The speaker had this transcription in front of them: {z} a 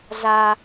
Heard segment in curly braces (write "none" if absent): z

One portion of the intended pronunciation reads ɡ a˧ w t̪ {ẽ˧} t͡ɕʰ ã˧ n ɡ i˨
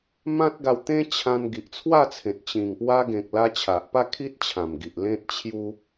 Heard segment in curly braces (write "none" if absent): ẽ˦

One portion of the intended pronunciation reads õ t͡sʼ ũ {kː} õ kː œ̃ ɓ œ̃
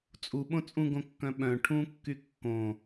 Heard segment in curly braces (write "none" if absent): ɡ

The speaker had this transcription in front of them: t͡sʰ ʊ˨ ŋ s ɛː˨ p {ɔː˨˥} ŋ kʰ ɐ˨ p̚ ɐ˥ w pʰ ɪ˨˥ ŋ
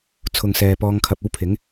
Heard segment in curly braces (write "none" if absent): ɔː˧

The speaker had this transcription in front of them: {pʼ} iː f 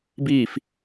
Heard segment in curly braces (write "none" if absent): b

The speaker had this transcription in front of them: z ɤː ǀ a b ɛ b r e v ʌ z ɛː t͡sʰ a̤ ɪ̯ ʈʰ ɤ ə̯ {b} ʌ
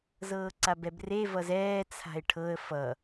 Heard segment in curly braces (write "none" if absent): f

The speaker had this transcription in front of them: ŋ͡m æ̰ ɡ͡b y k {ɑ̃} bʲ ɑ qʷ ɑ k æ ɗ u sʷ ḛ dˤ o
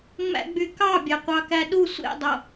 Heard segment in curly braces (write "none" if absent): ɑ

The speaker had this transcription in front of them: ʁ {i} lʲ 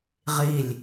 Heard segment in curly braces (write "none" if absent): i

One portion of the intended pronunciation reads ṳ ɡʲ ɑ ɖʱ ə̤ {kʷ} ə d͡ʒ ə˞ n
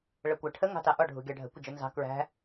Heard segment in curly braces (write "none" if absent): kʷ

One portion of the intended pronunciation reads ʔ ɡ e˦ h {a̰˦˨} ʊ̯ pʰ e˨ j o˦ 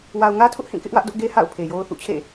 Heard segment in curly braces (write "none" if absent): a̰˦˨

